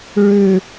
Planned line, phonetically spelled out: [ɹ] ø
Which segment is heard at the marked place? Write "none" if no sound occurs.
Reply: ɹ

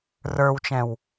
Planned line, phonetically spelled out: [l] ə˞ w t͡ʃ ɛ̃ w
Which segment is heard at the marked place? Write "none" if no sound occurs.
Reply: r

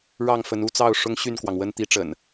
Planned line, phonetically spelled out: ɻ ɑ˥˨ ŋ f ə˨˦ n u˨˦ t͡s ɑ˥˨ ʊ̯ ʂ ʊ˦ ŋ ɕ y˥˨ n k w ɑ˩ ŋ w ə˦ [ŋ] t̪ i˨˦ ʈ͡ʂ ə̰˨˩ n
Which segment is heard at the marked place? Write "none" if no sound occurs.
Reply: n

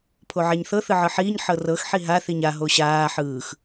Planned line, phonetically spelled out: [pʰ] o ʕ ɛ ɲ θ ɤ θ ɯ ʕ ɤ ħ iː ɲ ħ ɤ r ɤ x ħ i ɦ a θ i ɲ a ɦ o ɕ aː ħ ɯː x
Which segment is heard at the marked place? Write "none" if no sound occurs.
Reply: pʰ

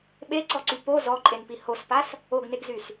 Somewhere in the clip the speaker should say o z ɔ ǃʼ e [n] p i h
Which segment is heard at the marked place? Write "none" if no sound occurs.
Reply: n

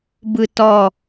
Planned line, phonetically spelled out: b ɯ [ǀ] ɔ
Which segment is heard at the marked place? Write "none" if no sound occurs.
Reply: t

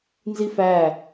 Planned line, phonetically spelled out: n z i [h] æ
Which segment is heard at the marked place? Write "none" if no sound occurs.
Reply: f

